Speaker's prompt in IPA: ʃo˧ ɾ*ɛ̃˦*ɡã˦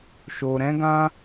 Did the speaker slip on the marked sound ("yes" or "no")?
no